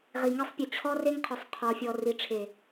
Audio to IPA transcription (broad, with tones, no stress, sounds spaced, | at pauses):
ʁ i˨ ŋ e˦ sˤ pʲ ɵ˨ t͡ɕʰ ɔ˦ r e˦ ŋ qʰ ɵ˨ sˤ qʰ ɔ˨ fʲ ɔ˨ r i˨ ʈ͡ʂʰ e˨